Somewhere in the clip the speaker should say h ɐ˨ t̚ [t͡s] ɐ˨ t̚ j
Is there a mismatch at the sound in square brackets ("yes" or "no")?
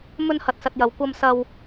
yes